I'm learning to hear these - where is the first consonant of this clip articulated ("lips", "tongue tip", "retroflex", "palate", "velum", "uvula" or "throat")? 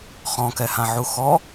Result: uvula